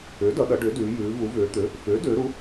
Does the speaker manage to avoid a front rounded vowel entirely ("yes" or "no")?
no